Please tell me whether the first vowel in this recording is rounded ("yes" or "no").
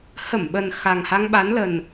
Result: no